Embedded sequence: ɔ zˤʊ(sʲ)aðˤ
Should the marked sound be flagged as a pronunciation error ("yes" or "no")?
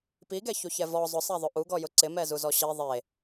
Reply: yes